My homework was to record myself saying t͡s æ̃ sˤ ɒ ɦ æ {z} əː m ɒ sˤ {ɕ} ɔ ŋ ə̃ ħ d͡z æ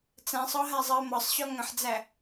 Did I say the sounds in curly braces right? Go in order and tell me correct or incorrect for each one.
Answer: incorrect: zˤ, correct

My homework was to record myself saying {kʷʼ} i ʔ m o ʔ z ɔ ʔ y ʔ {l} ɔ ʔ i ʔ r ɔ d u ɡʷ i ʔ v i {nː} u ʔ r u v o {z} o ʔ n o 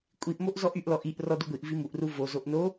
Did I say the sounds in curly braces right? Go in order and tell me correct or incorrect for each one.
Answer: correct, correct, incorrect: m, correct

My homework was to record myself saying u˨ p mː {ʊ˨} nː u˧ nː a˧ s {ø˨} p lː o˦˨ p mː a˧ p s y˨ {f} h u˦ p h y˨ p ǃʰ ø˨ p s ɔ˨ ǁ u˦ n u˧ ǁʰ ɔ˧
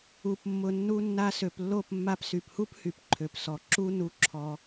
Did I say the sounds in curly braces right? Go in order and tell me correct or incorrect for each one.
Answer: correct, correct, incorrect: p

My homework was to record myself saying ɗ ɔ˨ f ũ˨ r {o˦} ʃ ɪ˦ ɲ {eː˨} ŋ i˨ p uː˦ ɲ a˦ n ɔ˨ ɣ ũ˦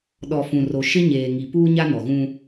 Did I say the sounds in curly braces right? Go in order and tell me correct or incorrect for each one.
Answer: incorrect: o˨, correct

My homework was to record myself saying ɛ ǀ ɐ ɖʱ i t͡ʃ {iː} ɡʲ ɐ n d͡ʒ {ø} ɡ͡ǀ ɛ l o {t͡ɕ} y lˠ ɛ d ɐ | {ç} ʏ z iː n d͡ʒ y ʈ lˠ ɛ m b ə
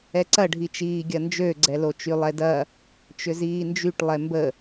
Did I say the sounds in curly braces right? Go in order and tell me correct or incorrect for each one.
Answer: correct, correct, incorrect: t͡ʃ, incorrect: t͡ʃ

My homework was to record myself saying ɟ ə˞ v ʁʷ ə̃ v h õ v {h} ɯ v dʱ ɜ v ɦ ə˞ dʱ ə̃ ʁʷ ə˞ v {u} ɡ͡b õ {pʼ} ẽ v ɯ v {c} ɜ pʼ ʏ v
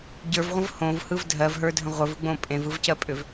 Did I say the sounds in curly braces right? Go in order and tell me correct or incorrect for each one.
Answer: correct, incorrect: ɯ, correct, correct

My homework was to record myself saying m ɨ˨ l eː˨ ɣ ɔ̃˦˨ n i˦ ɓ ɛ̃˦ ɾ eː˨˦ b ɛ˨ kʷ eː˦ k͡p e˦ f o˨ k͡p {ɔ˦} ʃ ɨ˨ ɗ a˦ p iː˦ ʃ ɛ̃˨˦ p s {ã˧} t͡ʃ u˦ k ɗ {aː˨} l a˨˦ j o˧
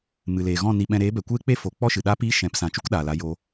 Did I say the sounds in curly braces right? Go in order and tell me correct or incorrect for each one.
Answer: correct, incorrect: ã˨, correct

